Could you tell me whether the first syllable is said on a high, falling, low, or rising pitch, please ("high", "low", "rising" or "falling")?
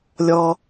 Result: low